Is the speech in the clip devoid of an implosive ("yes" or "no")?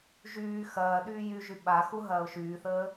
no